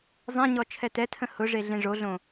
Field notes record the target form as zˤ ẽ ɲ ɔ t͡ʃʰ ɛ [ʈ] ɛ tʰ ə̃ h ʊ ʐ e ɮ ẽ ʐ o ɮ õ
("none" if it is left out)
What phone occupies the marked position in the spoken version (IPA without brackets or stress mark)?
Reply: t